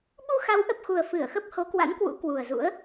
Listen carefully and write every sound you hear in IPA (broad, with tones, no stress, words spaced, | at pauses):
ɓu˧xa˨˦wʔə˨˩p̚xu˨˩ə̯ fɨ˧˩ə̯xə˦˥p̚ ho˨˦kwa̰˧˥nkwṵ˧˥ kwu˨˩ə̯zṵ˧˥ə̯